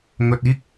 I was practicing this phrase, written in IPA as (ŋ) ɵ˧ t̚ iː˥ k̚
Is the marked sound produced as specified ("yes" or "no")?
yes